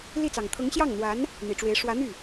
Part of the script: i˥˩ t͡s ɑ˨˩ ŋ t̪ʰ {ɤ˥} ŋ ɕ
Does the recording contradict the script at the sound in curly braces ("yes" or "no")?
yes